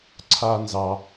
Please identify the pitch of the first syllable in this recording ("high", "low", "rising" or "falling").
low